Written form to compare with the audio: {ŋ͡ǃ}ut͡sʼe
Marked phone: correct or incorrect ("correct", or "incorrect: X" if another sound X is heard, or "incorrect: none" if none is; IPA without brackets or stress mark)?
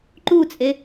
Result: incorrect: ǃ